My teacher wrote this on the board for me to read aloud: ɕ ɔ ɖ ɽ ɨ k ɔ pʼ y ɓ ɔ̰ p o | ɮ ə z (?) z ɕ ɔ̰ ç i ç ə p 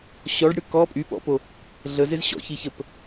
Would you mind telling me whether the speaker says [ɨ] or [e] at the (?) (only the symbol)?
e